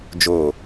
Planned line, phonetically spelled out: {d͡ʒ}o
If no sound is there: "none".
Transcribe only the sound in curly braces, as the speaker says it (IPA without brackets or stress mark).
d͡ʒ